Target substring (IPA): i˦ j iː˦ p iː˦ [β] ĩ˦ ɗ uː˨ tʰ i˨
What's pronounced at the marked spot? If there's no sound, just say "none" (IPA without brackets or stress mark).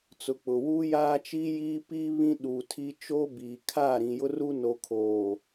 β